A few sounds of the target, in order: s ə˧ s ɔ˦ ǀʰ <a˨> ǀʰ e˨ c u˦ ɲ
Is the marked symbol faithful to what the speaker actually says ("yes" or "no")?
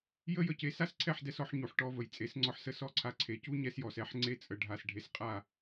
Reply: no